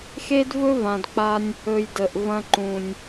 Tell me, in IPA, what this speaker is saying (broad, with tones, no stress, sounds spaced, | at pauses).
x e˦ d v ɵ˦ v ã˨ d k͡p a˧ nʲ | ɵ˨ j d ə˨ ʔ v ɐ̃˧ ǃ ũ˨ nʲ